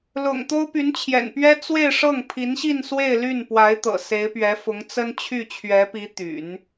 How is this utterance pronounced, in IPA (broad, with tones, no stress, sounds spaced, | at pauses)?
l ʊ̰˨˩ ŋ t̪ o˥ ʊ̯ p y˧˥ n t͡ɕʰ j ɛ̰˨˩ n p ɥ ɛ˥ t͡s w e˥˧ ɪ̯ ʂ ɤ˥˩ ŋ pʰ i˧˥ n ɕ i˥˧ n s w e˥˧ ɪ̯ l y˥˩ n p w a˧˥ ɪ̯ t̪ ɤ̰˨˩ s e˧˥ ɪ̯ p ɥ ɛ˧˥ f ʊ˧˥ ŋ t͡s ə˥ n t͡ɕʰ y˥˩ t͡ɕʰ ɥ ɛ˧˥ p i˧˥ t̪ y̰˨˩˦ n